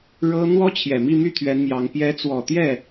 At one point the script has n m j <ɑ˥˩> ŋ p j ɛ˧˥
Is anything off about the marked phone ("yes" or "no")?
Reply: yes